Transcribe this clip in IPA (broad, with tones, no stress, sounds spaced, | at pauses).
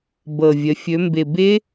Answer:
b ɤ˨˩ vʲ ə˩˧ fʲ ɵ˩˧ m b ɪ˨˩ b ɪ˦˥